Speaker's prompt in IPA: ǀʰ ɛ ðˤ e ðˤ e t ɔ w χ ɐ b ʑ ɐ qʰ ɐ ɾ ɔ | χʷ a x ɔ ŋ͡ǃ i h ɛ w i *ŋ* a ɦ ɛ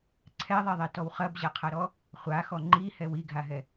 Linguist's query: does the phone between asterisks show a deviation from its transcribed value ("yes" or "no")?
yes